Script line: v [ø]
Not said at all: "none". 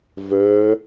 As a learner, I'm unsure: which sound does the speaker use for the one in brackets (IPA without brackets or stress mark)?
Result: œ